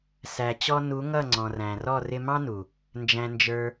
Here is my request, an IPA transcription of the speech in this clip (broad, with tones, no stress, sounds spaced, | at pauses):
s æ˨ t͡ɕ ɔ˧ n u˨˦ ŋ ʌ˦˨ ŋ͡ǀ ɔ̃˨ r æ̃˨ r ɔ˦˨ r ɪ˧ m ɑ̃˦ n u˨ | n d͡ʒ æ̃˧ n d͡ʒ ə˞˧